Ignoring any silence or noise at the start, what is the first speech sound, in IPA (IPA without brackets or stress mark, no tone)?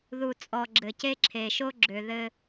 ð